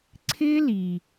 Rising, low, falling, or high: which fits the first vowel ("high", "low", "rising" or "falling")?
high